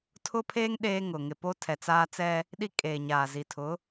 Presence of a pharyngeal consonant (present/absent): absent